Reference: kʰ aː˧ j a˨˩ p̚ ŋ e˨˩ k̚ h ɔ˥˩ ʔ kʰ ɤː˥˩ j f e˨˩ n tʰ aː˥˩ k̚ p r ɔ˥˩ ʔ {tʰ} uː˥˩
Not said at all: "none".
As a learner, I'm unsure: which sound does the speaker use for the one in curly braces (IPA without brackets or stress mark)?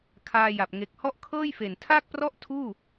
tʰ